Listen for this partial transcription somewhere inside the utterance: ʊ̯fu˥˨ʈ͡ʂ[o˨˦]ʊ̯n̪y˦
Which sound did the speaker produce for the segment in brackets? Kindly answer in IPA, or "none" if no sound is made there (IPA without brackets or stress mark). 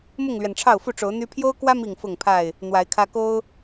o˨˦